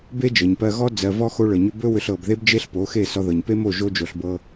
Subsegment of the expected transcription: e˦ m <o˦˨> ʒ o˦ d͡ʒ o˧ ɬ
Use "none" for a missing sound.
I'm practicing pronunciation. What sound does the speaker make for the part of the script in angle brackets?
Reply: o˦˨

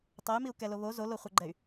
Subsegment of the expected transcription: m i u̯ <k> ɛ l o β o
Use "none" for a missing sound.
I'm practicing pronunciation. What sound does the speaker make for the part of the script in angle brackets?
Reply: k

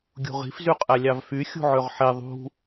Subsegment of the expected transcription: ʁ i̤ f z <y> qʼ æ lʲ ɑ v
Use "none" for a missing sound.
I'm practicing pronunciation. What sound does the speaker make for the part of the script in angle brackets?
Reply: y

